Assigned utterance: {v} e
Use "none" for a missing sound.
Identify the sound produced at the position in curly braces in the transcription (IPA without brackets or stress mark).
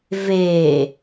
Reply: v